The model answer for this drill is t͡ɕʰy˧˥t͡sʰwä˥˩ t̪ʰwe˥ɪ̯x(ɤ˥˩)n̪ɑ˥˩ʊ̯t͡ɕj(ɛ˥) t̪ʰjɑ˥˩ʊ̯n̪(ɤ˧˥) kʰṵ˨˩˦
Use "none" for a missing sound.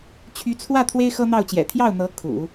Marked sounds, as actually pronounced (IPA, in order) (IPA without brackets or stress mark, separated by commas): ɤ˥, ɛ̰˨˩, ɤ˧˥